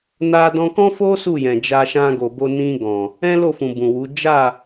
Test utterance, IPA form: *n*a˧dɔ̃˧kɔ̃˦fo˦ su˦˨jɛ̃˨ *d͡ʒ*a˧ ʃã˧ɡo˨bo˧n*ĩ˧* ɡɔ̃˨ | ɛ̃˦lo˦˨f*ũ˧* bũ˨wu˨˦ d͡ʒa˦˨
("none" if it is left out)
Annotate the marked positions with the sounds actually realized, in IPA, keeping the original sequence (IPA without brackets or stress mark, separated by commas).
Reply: n, d͡ʒ, ĩ˧, ũ˨